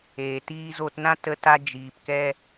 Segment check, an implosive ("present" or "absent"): absent